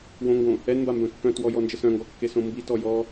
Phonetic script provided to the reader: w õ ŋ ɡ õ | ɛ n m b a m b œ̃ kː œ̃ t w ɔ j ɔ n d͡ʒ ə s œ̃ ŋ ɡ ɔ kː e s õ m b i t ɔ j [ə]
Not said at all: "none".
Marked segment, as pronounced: ɔ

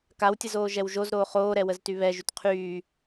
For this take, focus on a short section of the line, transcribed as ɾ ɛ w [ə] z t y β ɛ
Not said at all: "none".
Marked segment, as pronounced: ə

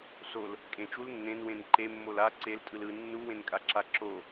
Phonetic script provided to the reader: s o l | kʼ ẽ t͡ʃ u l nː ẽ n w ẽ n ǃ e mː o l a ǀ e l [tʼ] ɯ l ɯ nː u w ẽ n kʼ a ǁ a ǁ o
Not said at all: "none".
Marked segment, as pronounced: tʼ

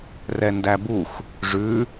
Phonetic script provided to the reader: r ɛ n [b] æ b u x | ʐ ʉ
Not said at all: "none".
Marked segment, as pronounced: d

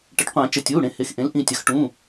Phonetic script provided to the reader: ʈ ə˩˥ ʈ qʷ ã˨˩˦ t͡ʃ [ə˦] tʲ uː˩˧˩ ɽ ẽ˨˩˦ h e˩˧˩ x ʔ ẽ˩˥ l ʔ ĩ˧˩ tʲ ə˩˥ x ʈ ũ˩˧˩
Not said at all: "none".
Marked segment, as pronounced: ə˩˧˩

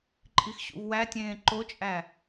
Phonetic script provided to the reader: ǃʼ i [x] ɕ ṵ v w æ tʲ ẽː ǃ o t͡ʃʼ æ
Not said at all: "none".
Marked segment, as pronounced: x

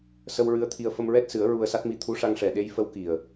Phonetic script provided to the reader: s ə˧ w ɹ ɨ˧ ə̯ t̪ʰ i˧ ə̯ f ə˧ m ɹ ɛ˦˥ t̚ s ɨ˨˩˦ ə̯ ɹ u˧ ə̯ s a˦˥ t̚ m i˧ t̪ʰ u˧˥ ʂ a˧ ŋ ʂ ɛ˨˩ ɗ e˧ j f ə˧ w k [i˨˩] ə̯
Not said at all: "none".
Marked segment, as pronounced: i˨˩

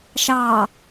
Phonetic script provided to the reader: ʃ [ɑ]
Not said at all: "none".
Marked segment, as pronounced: ɑ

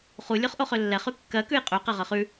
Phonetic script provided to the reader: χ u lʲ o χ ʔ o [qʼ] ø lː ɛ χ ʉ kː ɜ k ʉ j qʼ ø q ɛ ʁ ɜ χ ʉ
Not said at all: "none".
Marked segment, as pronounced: χ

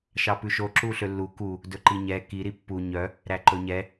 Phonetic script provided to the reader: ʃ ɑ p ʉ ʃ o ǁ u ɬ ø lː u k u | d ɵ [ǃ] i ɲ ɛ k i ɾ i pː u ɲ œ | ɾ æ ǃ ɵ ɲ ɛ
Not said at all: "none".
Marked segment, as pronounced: ǃ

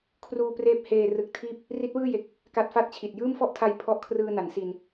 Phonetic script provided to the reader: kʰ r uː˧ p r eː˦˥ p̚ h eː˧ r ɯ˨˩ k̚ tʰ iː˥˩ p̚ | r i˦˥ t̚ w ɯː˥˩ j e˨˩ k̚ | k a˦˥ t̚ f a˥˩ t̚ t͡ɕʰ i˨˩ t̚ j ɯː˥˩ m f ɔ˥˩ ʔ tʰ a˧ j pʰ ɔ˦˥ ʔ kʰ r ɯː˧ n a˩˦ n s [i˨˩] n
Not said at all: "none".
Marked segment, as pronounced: i˧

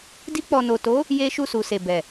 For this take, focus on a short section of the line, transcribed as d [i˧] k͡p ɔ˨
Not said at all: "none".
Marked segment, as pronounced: i˧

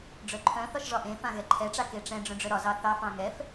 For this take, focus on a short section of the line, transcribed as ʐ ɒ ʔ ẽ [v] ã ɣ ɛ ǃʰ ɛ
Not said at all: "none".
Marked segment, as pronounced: f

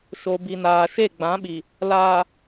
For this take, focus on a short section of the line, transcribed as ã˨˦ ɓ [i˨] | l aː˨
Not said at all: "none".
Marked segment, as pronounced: i˨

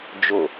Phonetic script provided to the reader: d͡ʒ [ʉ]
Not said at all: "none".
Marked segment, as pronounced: ʊ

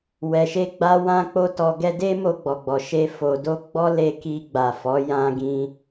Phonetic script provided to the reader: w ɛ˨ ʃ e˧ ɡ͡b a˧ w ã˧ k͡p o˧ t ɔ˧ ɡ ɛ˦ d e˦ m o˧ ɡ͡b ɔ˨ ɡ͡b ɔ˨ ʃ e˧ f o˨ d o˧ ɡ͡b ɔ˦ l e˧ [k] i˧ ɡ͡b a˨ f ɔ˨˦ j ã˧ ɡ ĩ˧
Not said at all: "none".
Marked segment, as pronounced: k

